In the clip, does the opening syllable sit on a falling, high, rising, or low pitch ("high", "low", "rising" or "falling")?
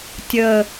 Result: low